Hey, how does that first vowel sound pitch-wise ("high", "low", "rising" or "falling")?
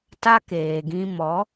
high